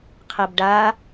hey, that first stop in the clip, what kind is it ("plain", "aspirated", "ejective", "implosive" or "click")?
aspirated